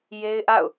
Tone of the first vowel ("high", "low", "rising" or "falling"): high